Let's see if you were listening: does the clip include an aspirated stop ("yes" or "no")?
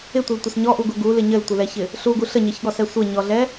no